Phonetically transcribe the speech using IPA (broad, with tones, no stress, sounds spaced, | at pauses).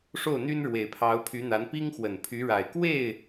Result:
ʂ o˥˩ ʊ̯ n̪ y˥ n ɻ w e˨˩ ɪ̯ pʰ ɑ˧˥ ʊ̯ pʰ y˧˥ n̪ a˧˥ n p i˥ ŋ x w ə˨˩ n pʰ y˧˥ ɻ a˨˩ ɪ̯ k w e˥˩ ɪ̯